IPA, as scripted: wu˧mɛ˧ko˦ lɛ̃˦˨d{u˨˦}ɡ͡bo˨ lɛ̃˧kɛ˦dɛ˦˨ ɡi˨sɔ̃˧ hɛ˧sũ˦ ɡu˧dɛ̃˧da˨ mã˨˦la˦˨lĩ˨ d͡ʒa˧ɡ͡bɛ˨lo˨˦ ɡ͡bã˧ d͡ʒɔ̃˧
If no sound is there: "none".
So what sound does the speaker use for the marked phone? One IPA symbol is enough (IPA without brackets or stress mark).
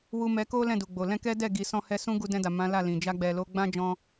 u˨